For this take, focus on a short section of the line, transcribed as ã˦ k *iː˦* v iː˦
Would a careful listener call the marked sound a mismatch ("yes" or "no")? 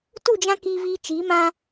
no